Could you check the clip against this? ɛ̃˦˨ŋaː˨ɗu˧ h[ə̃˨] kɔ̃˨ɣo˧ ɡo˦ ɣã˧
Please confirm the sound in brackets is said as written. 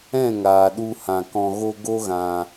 no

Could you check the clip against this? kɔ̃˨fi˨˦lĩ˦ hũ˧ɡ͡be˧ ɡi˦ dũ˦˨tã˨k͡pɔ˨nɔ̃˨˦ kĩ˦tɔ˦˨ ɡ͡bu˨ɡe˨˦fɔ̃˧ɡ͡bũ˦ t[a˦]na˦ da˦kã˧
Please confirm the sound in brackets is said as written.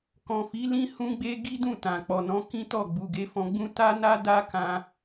yes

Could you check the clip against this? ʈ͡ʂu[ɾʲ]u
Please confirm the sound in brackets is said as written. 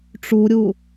yes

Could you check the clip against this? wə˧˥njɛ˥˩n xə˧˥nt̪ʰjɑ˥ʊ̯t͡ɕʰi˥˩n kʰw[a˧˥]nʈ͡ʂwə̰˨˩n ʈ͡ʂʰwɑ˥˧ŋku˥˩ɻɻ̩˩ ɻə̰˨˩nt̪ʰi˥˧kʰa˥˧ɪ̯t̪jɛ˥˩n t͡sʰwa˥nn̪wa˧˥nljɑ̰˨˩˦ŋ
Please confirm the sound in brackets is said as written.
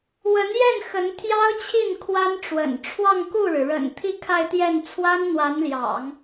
no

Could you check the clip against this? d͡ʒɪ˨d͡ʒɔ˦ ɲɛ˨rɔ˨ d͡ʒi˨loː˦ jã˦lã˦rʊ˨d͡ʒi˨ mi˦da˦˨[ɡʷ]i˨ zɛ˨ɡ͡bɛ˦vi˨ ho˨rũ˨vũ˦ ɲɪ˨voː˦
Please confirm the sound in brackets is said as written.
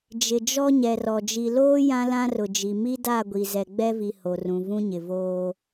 yes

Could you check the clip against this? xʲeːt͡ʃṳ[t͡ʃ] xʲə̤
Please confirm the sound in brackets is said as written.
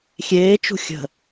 no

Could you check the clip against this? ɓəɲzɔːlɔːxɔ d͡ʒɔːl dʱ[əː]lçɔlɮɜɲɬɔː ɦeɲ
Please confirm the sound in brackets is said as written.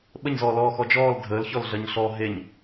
yes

